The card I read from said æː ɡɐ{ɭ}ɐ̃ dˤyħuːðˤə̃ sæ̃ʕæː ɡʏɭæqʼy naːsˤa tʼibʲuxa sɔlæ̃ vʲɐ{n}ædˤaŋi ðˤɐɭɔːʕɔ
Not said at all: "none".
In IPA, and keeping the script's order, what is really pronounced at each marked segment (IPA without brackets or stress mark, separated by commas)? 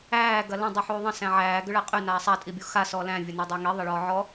l, n